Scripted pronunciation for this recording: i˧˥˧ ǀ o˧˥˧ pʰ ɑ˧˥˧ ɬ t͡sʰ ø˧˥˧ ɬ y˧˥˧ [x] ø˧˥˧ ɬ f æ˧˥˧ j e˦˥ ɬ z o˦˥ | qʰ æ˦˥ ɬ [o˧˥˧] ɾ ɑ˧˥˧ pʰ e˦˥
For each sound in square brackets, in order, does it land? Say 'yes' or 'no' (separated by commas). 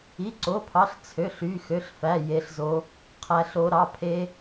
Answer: yes, no